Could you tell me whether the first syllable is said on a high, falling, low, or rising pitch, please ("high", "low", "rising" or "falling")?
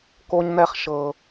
high